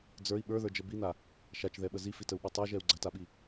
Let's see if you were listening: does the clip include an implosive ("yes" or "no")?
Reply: yes